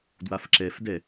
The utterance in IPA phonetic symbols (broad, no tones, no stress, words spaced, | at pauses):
dwafǁɛfdɛ